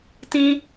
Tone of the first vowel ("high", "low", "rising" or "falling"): high